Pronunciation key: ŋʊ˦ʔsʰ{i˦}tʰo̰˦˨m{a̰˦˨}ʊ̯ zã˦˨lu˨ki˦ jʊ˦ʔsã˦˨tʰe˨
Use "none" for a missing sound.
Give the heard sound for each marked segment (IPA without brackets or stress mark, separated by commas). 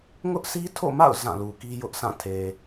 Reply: i˦, a̰˦˨